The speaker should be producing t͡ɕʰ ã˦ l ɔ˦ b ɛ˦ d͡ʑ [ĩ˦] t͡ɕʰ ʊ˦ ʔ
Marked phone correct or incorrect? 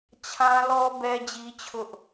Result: incorrect